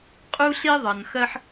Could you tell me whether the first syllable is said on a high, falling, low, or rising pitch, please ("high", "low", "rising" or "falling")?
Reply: high